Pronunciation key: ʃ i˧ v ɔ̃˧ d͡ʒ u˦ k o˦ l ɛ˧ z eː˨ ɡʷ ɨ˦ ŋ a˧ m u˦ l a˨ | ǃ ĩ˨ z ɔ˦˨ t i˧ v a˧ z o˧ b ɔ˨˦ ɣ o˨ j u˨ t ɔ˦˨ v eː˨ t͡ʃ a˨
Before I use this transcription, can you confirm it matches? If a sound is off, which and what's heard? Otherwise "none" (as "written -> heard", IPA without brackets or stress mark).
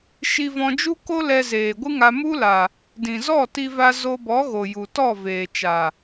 ǃ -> d